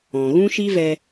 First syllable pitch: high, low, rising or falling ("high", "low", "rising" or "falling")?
low